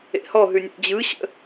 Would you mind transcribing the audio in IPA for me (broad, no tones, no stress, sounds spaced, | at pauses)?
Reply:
ḛ h ɔ ɦ ʉ nʲ ḛ d͡ʑ ɯ ɕ ə̰